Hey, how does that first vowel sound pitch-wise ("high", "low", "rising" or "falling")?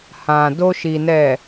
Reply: low